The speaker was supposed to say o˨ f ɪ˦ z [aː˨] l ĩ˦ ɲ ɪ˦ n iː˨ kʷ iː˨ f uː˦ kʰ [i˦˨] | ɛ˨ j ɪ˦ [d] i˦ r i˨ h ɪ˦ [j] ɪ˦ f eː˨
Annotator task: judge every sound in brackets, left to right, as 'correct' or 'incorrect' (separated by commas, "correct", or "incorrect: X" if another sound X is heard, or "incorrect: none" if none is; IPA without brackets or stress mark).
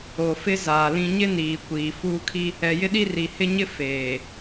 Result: correct, incorrect: i˦, incorrect: ɗ, incorrect: ɲ